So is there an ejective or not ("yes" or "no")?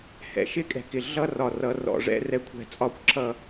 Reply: yes